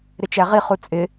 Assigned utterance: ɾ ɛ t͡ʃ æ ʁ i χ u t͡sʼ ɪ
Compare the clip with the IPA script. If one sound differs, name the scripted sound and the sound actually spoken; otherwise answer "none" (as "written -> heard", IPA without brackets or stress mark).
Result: ɛ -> ɪ